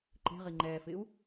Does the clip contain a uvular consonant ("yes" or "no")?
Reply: yes